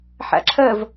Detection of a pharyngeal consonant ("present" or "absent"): present